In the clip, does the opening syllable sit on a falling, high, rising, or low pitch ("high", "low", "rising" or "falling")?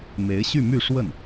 rising